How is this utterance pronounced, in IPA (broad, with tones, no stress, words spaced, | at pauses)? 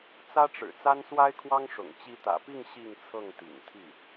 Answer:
t͡sä˥ʈ͡ʂɻ̩˨˩ t͡sa˥nswa˥ɪ̯kʰwɑ˥ŋʂʊ̰˨˩ŋ t͡ɕi˧˥t̪ä̰˨˩pi˥˧ŋ ɕi˥˧ŋt͡sʰɤ˥˩ŋt̪ḭ˨˩ŋt̪ʰi˥˩